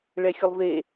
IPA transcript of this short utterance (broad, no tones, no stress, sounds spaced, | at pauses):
ɭ ɛ xʲ ʊ lˠ v e